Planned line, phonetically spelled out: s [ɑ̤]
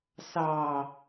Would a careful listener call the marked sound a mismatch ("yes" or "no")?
yes